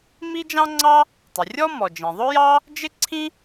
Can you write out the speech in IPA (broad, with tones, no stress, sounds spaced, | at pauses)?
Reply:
m i˥ d͡ʒ ɑ̃˥ ŋ͡ǀ ɑ˥ | tˤ ɪ˩ rʲ ɔ˥ m ɔ˩ d͡ʒ ĩ˩ ðˤ ʊ˥ j ɑ˥ | d͡ʒ ɪ˥ ǀʰ ĩ˥